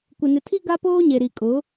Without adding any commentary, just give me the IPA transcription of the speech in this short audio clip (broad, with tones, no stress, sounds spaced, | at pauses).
kʷ ɪ˨ n ɪ˨ tʰ i˦ ɡ a˦ p oː˦ ɲ e˨ ɾ i˨ kʼ ʊ˨˦